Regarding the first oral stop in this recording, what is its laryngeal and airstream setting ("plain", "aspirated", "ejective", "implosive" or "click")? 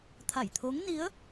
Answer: aspirated